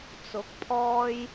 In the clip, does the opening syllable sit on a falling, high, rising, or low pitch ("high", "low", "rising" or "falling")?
rising